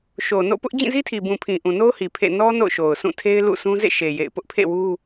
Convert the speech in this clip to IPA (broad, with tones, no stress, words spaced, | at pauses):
ʃo˨no̰˦˨ pʊ˦ʔ d͡ʑĩ˦˨zi˦tʰi˨bũ˨ pʰĩ˨ʔũ˨no˦ʊ̯hi˨ pʰḛ˦˨ nɔ˦ no̰˦˨ʊ̯ʃo˨ʊ̯sʰũ˦˨tʰe˦ɪ̯ lṵ˦˨sʰũ˦ zḛ˦˨ʃe˨ jḛ˦˨ɪ̯ pʊ˦ʔpʰḛ˦˨ wu˦